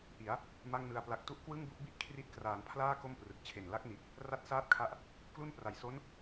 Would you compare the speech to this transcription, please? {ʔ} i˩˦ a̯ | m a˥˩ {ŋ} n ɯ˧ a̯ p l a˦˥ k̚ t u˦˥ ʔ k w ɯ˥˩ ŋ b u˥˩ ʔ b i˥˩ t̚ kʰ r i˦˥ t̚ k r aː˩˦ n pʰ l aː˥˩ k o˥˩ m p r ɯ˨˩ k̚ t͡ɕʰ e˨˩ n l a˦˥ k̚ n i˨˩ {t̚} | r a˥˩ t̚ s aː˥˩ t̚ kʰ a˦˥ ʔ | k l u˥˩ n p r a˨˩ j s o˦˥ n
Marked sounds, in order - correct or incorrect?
correct, correct, correct

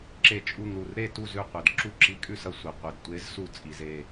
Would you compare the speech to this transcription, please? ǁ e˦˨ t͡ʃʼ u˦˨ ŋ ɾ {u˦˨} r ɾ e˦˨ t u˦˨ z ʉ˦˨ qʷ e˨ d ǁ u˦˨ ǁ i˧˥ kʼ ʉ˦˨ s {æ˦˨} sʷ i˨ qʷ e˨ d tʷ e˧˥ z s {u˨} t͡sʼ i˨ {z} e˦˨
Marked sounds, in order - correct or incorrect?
correct, incorrect: ɐ˦˨, incorrect: u˦˨, correct

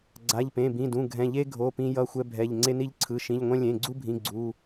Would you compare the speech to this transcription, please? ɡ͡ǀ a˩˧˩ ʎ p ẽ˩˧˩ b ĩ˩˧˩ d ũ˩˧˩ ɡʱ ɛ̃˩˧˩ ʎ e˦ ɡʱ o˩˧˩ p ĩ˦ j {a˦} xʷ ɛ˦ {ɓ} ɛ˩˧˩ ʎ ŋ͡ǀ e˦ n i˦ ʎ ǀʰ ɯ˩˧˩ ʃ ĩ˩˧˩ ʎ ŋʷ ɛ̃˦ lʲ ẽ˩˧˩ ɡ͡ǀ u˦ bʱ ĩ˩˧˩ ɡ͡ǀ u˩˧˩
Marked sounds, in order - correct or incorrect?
incorrect: ʌ˦, incorrect: bʱ

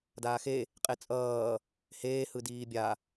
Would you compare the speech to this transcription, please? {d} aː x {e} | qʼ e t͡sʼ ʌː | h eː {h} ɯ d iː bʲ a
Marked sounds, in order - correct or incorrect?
correct, correct, correct

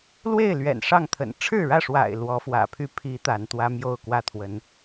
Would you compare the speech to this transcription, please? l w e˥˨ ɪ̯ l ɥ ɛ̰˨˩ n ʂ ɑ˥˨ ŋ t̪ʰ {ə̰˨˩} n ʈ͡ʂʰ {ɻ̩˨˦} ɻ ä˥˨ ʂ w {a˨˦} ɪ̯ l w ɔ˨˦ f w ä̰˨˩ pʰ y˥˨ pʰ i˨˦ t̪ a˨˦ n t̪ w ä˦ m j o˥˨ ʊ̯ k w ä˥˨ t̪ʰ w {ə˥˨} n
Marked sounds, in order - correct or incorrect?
correct, incorrect: ɻ̩˥˨, incorrect: a̰˨˩, incorrect: ə˨˦

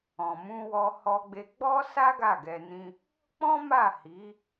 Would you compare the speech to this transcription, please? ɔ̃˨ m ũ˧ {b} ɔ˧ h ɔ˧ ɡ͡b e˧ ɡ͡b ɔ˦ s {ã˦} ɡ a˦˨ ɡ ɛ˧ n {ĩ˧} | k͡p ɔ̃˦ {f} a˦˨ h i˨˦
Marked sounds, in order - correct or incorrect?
incorrect: w, incorrect: a˦, incorrect: ĩ˦, incorrect: m

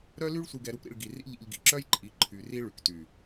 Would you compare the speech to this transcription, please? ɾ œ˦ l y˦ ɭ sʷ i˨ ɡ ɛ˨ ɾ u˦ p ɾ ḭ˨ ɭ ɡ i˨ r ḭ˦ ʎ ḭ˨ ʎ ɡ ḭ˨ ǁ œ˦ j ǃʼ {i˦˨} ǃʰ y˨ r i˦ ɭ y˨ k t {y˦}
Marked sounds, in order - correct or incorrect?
incorrect: i˨˦, incorrect: y˨

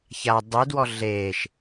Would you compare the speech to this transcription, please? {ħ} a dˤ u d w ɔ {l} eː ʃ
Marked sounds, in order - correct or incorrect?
incorrect: ç, incorrect: ɮ

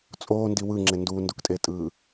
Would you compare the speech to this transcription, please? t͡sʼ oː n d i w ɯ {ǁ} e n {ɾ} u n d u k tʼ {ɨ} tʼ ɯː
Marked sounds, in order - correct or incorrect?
incorrect: ŋ͡ǁ, incorrect: d, incorrect: e

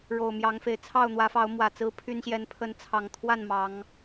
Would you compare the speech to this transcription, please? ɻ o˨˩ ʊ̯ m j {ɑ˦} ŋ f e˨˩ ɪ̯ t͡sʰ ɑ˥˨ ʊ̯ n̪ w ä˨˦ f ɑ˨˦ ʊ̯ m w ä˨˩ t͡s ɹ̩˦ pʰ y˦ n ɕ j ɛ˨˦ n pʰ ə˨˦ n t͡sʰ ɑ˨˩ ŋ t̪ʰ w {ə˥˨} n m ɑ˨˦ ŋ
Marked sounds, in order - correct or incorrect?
incorrect: ɑ˨˦, incorrect: a˥˨

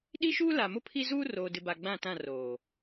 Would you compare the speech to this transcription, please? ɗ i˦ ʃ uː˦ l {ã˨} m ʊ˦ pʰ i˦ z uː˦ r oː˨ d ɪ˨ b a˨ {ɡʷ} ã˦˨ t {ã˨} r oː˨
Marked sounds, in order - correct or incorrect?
incorrect: a˨, incorrect: ɡ͡b, incorrect: ã˦˨

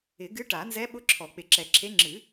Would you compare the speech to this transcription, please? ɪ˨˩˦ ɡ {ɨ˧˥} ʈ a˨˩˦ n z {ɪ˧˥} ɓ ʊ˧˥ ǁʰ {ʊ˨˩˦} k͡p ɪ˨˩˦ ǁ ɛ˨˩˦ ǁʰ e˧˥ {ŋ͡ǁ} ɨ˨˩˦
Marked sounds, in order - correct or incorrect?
correct, incorrect: ɛ˧˥, incorrect: ɔ˨˩˦, correct

